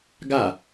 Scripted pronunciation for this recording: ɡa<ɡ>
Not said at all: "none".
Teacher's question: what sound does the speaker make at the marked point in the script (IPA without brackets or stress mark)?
none